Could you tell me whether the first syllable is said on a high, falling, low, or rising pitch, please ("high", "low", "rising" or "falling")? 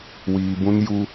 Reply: low